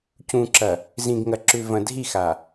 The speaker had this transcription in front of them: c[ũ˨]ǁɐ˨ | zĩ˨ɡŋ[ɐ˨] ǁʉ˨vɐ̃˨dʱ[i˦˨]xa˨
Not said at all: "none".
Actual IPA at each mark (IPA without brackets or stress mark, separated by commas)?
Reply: ũ˨, ɐ˨, i˦˨